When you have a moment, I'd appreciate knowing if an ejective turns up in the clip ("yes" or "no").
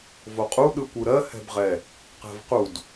yes